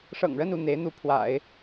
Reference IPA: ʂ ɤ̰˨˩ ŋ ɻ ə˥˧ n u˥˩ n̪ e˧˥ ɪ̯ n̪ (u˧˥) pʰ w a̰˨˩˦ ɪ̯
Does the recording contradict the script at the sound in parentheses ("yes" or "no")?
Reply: no